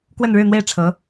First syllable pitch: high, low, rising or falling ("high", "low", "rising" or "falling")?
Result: falling